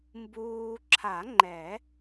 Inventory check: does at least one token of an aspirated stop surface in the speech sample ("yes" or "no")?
yes